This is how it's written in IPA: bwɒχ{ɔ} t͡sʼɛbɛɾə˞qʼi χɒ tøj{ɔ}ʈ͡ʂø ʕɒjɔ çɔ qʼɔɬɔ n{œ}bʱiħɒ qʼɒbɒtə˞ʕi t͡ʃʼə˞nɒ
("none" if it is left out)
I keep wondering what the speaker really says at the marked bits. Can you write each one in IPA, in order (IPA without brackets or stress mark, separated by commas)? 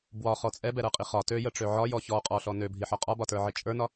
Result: ɔ, ə, ø